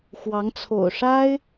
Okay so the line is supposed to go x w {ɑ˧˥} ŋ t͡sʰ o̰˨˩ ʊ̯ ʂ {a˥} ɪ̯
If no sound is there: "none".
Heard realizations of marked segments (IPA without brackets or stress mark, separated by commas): ɑ˧˥, a˥